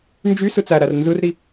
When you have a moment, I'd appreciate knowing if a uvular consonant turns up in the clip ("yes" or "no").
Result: no